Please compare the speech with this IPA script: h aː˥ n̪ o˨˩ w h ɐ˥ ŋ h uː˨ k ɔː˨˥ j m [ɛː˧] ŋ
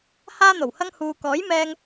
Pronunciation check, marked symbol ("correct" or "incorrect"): correct